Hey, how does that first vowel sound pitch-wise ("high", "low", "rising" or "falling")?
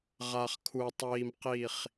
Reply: low